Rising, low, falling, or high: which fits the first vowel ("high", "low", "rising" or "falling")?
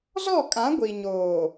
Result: falling